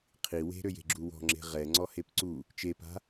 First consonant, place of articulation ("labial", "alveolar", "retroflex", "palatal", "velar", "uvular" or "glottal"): uvular